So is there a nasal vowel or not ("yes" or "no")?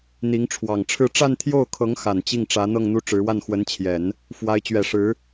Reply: no